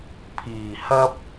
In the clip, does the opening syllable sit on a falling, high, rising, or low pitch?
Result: low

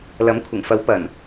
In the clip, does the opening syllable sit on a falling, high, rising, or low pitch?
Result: rising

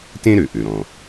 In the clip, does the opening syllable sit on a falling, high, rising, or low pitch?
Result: high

